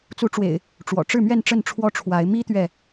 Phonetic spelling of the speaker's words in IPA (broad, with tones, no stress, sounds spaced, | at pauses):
t͡s u˨˦ ʈ͡ʂ w ḛ˨˩ ɪ̯ | ʈ͡ʂ w ɔ̰˨˩ ʈ͡ʂ ɻ̩˥˨ m ɥ ɛ˥˨ n ʈ͡ʂ ə˥˨ n ʈ͡ʂʰ w ɔ˦ ʈ͡ʂʰ w a˨˦ ɪ̯ m i˦ t̪ ɥ ɛ˨